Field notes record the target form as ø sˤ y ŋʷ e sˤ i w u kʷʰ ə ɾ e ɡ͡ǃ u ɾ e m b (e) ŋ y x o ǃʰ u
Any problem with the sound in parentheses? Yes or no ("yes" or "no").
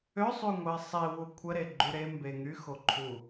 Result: no